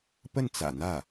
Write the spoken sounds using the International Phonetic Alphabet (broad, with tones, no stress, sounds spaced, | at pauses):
p ə˥˩ n t͡s ä̰˨˩ n̪ ä˥˩